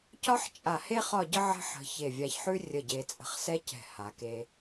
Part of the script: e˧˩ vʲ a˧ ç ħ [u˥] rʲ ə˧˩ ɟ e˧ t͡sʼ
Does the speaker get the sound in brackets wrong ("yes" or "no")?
yes